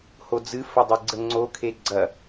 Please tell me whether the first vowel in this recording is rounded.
yes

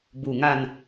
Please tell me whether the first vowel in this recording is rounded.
yes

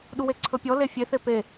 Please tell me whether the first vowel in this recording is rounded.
yes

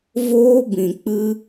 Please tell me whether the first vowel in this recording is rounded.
yes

